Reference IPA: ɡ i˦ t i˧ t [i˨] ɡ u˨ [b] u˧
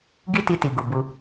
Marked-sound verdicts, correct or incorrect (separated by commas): correct, correct